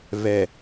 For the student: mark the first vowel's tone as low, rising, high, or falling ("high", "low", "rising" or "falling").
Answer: low